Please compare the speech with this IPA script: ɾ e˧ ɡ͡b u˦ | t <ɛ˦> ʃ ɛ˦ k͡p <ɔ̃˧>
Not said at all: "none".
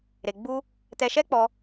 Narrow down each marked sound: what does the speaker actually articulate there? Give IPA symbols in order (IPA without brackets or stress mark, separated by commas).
ɛ˧, ɔ˧